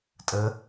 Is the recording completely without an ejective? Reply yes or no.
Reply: no